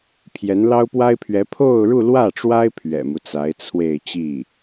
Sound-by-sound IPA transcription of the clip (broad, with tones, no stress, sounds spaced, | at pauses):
pʰ j ɛ˧˥ n l ɑ˥ ʊ̯ p w a˥ ɪ̯ pʰ ɥ ɛ˧˥ pʰ o˥˧ ʊ̯ ɻ u˥˧ l w ä˥˩ ʈ͡ʂ w a˥ ɪ̯ pʰ ɥ ɛ̰˨˩ m u˦ t͡s a˧˥ ɪ̯ t͡sʰ w e˥˧ ɪ̯ t͡ɕ i˥˩